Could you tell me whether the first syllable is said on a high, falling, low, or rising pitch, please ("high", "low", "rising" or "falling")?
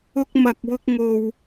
high